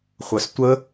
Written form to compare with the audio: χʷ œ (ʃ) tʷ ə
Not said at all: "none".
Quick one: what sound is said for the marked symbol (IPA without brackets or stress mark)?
s